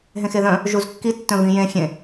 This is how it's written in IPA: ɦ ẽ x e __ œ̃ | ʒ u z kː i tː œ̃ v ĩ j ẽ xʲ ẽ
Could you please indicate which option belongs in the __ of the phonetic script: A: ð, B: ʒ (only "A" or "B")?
A